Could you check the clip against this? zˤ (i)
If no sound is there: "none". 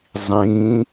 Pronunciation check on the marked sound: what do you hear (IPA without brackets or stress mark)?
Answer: ĩ